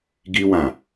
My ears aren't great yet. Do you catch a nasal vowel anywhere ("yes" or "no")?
yes